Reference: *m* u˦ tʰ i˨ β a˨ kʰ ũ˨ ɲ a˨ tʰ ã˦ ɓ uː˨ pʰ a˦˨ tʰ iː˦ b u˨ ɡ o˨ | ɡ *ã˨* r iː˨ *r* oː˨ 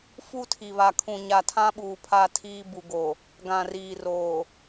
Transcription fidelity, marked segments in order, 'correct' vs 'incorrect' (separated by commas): incorrect, correct, correct